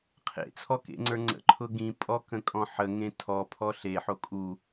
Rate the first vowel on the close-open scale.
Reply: mid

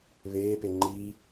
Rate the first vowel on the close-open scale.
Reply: mid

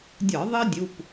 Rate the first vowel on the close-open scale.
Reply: open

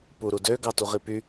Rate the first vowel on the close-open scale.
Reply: close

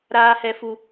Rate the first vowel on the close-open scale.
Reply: open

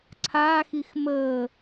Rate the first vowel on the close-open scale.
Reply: open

